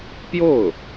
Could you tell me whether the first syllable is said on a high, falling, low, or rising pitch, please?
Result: falling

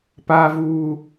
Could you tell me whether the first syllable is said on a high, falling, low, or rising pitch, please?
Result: high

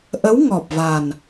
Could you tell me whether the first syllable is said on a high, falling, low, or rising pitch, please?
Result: rising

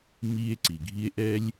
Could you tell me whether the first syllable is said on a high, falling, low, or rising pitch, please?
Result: high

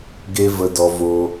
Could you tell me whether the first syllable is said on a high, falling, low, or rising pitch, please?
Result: high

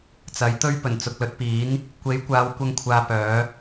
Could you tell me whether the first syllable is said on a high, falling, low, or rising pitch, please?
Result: rising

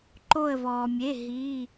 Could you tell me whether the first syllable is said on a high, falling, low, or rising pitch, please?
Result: falling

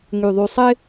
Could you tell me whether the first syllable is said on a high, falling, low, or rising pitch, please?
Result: low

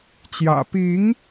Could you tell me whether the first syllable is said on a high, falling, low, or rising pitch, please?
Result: low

